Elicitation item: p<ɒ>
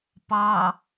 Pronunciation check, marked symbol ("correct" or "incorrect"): incorrect